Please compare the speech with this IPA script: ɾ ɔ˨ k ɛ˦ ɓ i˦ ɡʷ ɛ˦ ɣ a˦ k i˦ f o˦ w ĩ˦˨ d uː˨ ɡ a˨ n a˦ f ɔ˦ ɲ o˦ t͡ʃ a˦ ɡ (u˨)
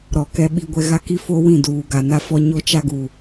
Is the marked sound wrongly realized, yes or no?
no